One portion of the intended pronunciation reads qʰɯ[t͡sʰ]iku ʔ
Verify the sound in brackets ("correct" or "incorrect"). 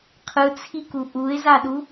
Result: correct